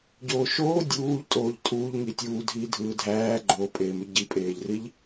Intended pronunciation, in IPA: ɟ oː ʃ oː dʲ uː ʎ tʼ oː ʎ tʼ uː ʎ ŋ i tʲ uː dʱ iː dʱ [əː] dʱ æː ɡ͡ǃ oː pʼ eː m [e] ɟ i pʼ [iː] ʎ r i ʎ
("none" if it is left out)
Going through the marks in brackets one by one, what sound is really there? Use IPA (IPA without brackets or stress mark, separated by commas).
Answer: ɯː, y, eː